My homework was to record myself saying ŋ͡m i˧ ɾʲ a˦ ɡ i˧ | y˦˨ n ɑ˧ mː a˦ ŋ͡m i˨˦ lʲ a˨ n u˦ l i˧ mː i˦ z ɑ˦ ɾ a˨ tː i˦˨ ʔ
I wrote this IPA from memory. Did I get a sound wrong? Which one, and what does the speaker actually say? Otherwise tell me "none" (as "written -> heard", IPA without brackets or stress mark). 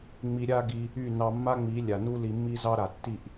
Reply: none